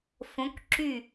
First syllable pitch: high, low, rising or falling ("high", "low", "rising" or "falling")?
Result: rising